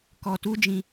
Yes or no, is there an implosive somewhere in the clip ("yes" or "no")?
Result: no